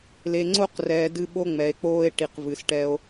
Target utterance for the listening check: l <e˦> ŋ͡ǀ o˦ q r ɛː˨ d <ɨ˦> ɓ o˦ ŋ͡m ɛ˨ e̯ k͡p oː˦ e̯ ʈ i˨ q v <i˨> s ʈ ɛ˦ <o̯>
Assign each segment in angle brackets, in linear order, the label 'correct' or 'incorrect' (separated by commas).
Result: incorrect, correct, incorrect, correct